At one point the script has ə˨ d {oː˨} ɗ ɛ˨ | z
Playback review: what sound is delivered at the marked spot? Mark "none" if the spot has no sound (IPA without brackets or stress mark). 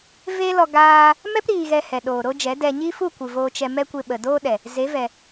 oː˦